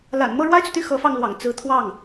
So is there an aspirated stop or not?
yes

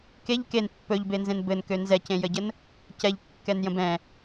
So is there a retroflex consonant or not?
no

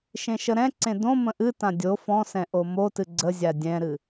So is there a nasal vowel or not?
yes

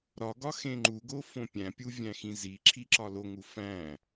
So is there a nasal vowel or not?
yes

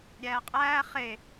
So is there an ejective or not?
yes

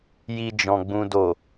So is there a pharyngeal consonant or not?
no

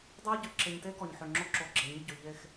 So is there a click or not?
yes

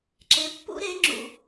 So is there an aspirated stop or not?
no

